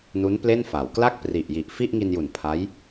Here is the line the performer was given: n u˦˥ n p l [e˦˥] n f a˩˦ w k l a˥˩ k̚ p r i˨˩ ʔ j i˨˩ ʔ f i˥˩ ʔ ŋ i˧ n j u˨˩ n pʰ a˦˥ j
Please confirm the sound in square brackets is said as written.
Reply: no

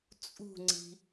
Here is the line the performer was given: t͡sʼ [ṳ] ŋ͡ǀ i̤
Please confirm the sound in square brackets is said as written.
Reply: yes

